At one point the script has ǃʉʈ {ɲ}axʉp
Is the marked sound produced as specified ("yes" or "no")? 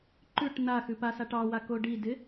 no